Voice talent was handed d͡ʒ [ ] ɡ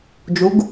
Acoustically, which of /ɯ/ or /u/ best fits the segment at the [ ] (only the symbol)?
u